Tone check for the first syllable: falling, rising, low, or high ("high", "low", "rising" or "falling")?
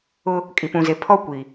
high